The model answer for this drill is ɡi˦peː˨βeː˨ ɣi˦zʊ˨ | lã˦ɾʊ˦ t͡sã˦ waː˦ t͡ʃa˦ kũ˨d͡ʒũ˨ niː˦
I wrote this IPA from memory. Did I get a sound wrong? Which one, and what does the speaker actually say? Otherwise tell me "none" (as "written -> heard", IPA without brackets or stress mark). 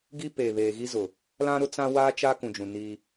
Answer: none